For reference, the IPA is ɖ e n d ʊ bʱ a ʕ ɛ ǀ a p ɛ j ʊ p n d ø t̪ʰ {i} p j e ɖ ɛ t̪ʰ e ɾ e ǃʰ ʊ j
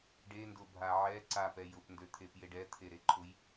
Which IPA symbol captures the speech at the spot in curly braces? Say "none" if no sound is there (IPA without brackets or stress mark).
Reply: e